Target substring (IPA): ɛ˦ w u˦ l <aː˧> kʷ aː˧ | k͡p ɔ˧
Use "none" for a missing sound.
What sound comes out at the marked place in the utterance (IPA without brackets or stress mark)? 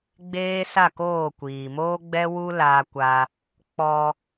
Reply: aː˧